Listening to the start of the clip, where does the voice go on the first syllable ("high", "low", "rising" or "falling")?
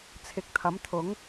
rising